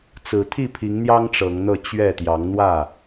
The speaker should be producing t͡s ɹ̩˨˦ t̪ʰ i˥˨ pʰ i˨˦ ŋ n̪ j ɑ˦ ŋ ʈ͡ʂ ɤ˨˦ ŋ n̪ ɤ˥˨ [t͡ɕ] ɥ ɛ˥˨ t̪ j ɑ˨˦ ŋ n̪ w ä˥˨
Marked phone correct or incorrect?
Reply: correct